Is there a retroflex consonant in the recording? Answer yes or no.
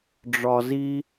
yes